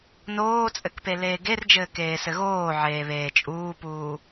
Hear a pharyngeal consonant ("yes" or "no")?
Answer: yes